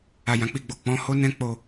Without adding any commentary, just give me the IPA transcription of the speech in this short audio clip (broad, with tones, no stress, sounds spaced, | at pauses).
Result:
a˨ j ã˨ k͡p i˧ ɡ͡b o˨ k͡p ɔ̃˨˦ h o˦ n ɛ̃˦ k͡p o˦˨